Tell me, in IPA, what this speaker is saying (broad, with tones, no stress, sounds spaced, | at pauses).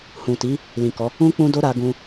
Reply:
h ũ˨ t i˨˦ | l ĩ˨ k ɔ˨˦ | ũ˦ k͡p ũ˦ d o˦ ɾ a˧ ɡ ũ˧